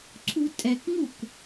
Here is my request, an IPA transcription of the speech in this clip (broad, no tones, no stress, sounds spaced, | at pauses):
ǀʰ u tʼ ɛ k ŋ u k